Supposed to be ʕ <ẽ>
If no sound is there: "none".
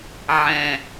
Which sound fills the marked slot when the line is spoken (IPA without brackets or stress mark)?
ɛ̃